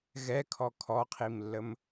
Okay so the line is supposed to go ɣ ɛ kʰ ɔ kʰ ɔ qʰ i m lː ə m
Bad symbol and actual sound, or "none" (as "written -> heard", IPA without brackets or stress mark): none